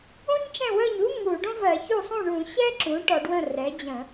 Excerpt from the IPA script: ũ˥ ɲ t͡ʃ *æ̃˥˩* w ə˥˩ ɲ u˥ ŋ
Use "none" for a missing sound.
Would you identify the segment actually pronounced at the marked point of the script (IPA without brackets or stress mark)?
ɛ̃˥˩